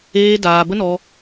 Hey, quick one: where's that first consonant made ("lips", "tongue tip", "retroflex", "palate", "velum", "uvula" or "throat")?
tongue tip